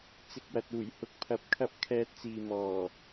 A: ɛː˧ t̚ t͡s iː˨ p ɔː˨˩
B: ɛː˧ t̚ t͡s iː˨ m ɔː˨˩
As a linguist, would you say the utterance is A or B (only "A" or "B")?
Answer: B